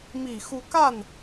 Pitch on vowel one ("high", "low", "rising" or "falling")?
low